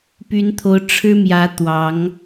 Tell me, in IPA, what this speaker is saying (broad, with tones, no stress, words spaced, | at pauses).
py˨˦nt̪ʰo˨˦ʊ̯ ʈ͡ʂʰɻ̩˦mjä˨˦ t̪wɑ˨˦ŋ